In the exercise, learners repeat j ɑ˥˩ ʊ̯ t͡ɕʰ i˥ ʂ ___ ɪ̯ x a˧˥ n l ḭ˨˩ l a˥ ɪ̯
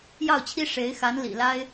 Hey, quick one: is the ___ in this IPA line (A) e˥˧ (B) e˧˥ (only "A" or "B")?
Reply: B